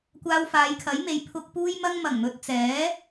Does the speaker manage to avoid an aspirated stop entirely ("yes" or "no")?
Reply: no